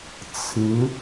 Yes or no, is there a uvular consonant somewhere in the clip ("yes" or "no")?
no